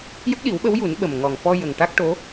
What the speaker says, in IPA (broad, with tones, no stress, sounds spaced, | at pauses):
j ə˦˥ k̚ ɗ i˨˩˦ w ɓ ə˧˥ w j u˨˩˦ n ɓ ə˨˩ m ŋ ɔ˨˩ ŋ f ɔ˧ j ə˨˩ ŋ ʈ a˦˥ k̚ ʈ o˧˥